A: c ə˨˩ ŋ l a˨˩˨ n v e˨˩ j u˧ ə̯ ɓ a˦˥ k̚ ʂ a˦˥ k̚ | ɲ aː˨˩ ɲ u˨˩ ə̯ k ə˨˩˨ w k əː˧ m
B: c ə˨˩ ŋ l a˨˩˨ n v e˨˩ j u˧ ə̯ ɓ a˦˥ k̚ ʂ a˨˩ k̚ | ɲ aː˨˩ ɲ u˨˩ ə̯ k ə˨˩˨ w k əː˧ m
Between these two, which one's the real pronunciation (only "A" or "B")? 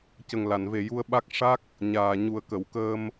A